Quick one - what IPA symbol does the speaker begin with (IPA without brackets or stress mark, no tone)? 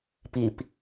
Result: p